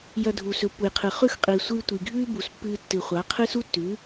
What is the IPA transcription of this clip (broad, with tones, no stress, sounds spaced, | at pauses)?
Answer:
j ɐ˧ dʱ u˩ s ɵ˩˥ pː u˩ j qʰ ɨ˩ χ ʉ˥˩ x qʼ iː˩ sʷ ɨː˧ tʷ i˩ ɡʱ ʉː˥ b u˩ s pː ɨː˧ tː ɨ˩ χʷ a˩˥ qʰ ɨ˥ s u˥ tː ʉ˩˥